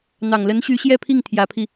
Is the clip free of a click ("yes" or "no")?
yes